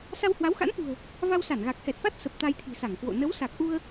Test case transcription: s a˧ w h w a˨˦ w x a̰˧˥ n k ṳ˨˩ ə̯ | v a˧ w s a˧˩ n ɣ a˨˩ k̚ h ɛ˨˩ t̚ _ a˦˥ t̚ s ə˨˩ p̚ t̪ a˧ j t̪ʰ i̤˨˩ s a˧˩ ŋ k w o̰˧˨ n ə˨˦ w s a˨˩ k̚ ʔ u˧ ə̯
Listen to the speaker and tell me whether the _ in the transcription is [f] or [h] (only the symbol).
f